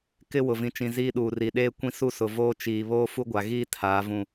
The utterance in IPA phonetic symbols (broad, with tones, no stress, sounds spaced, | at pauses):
k ɪ˦ w ʊ˨ v ĩ˨ t͡ʃ ĩ˨ z iː˦ ɗ uː˨ r i˨ ɗ eː˦ kʷ ĩ˦ s u˦ s ʊ˨ v oː˦ t͡ʃ iː˨ β oː˦ f u˦ ɡʷ a˨ ɣ iː˦ tʰ aː˨˦ v ũ˦˨